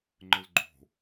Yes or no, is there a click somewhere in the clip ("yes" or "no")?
yes